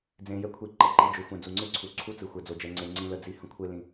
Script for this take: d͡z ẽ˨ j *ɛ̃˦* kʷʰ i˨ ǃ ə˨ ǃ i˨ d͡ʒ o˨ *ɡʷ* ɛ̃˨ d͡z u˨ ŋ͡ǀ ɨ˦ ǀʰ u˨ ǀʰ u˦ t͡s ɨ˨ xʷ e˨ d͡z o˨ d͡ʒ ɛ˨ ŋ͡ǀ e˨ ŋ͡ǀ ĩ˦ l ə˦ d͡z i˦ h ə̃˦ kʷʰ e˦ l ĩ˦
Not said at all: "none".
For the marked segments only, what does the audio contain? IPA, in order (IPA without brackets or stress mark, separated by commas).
ɛ˦, xʷ